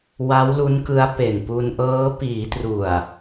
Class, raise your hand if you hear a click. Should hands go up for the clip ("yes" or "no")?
no